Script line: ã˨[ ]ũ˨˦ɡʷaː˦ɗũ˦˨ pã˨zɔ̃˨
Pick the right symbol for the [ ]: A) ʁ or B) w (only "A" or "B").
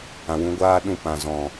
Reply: B